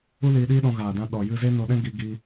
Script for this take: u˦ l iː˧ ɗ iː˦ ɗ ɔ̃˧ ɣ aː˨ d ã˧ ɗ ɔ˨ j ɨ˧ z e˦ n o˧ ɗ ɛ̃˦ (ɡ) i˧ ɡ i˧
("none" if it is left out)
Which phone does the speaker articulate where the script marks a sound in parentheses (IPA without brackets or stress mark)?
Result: ɡ